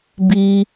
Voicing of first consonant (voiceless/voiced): voiced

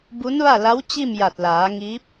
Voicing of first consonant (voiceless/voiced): voiced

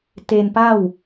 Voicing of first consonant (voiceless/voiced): voiceless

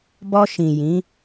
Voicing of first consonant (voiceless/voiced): voiced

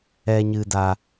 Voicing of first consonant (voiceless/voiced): voiced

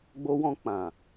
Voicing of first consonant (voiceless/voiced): voiced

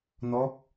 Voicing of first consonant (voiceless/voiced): voiced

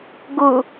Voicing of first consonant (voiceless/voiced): voiced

